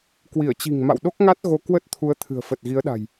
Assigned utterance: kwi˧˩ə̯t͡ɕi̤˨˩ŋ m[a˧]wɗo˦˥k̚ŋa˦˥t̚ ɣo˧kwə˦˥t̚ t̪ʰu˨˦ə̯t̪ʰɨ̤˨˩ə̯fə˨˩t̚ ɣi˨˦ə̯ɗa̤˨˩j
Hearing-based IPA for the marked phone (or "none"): a̰˧˨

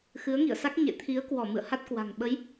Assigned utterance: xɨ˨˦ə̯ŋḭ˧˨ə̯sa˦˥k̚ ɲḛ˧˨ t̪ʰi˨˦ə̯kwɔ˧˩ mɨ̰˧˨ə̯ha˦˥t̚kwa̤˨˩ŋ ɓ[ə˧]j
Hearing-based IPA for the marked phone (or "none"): ə˨˦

